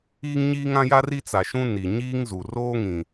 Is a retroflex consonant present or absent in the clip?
absent